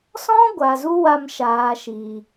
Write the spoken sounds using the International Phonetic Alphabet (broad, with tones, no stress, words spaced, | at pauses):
sɔ̃˦ ɡʷa˨zu˦wa˧m ʃaː˨ʃiː˨